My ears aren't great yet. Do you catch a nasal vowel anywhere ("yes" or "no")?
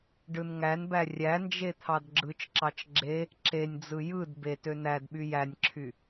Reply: no